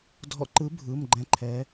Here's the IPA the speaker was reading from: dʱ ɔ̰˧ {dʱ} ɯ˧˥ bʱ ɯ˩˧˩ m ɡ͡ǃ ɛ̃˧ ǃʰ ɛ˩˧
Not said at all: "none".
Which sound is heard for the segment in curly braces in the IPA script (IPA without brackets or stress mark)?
ǃ